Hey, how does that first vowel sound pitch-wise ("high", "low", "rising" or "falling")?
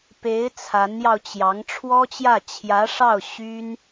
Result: rising